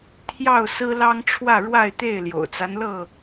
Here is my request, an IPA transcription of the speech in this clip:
t̪ʰjɑ˥˨ʊ̯sɹ̩˦lɑ˦ŋʈ͡ʂʰwä˥˨ ɻwa˥˨ɪ̯t̪e˥˨ɪ̯ ljo̰˨˩ʊ̯t͡sa˦nlɤ˥˨

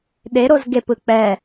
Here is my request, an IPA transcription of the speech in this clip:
ɗeɾoz ɡepɯ k͡pɛ

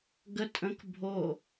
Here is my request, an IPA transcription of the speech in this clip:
ɡə tʼə̃k bʱo

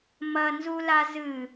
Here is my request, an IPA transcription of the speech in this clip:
mɐnzula zɨ

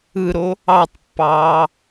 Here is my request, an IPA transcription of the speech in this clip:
ɯɾo | ɑtˤpːɑː

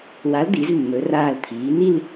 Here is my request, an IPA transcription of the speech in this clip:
wa˨˥ld̪i˩˧zmːɵ˩˧raː˧˩l t̪ʰiː˩˧ni˥˧l

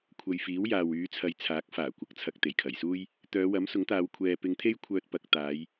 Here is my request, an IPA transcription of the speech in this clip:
kʷʰɐ˨jfiː˨˥w jaː˨wyː˨˧t͡sʰɐ˨˧jt͡sʰaː˨˥k̚ faː˨˩kʷɐ˨˥k̚t͡sʰɐ˨k̚ t̪e˨˩jkʰɐ˨˩jsuː˥j | t̪œː˨˧wɐ˨˥msʊ˨˥ŋt̪aː˨˧w kʷʰɛː˨ pɪ˧ŋt̪ʰe˥jkʷʰœː˧t̚ pɐ˨k̚ t̪aː˨˧j

